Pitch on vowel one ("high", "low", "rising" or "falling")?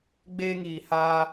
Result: high